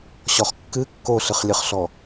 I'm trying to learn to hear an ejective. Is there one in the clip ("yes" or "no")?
no